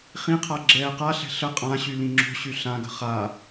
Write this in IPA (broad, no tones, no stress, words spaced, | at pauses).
χĩqʰa ɡ͡ǁɛːqaɬɛ̤ ɬə qʼãɕy lĩŋ͡ǁo̤ɕy ɬãɡə̤ χa